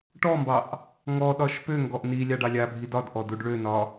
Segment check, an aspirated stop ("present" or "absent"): absent